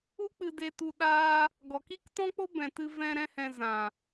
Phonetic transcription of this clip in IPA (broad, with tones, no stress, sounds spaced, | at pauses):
u˦ k͡p ɨ˧ d e˧ t u˧ ɗ aː˧ | ɡ ɔ˨ k i˦ k t ɔ̃˦ k͡p o˦ b ɛ̃˨ t ɨ˧ v ɛ̃˧ ɾ ɛ̃˦ h ɛ̃˧ z ã˨